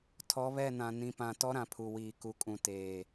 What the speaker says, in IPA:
tʰ ɔ˨˦ β ɛ˦˨ n ã˨ n ĩ˨ p ã˨ t ɔ˦ ɾ ã˨ pʰ u˨ w iː˨ k u˨ kʼ ũ˨ t eː˨

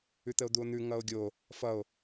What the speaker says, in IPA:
ʉ t̪ ə o̯ d̪ u o̯ n̪ ʉ ŋ ʌ o̯ ɡʲ o | f ʌ o̯

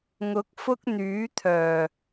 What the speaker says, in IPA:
ŋ ʊ˨˥ k̚ f ʊ˥ k̚ n̪ yː˨˥ t̪ʰ œː˨˩

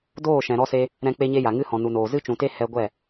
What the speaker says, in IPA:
d oː˦˨ ʃ ɛ̃˨ ɾ ɔ˧ s e˧ | ɾ ɛ̃˦ k͡p e˦ ɲ e˦ j a˨ ŋ ɨ˦ h ɔ̃˨ n u˨ n oː˨ z ɨ˦ t͡ʃ ũ˨ t e˦ h ɛ˧ ɡʷ ɛ˦˨

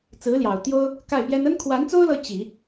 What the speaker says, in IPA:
t͡s ɹ̩˧˥ l j ɑ˨˩ ʊ̯ t̪ j o˥ ʊ̯ | k a˥˩ ɪ̯ p j ɛ˥ n ə˥ n kʰ w a˧˥ n t͡s o˥ ʊ̯ l ɤ˧˥ t͡ɕ i˨˩˦

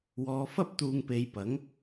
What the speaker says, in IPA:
w ɔː˨˧ f ɐ˥ p̚ t̪ uː˧ ŋ p e˧ j p ɐ˨˥ ŋ

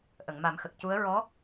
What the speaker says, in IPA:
ʔ ə˨˩˨ ŋ m a˨˩˦ m x ə˨˩ k̚ c u˧˥ ə̯ ɹ ɔ˧˥

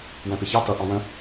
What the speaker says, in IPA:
w ɛ̃ p ɪ ç ɑ t ʌ ʔ ɑ̃ w ə̃

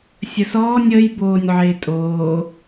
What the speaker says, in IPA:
sʲ ə s ɔː nʲ ə j b oː nʲ ʕ ɪː tʼ oː

